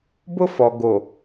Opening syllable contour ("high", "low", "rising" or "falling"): high